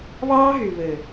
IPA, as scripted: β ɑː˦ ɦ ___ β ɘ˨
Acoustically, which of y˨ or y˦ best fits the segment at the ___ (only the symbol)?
y˨